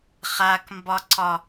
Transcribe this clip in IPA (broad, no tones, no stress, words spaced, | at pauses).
χakmbɒǀɒ